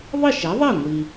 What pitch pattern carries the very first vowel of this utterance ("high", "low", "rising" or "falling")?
falling